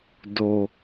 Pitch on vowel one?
low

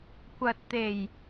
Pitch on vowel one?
low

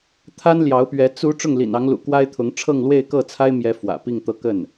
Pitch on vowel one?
high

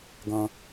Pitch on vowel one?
high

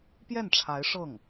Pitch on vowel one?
falling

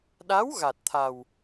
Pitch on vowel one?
rising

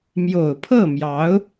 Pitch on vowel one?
low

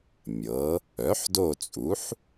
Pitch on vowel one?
rising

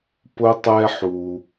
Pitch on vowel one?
high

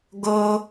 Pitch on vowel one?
high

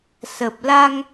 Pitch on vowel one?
low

